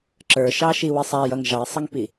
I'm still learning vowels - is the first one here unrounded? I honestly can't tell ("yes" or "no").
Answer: yes